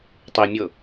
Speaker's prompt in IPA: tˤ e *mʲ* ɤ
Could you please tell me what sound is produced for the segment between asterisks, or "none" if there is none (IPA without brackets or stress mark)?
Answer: mʲ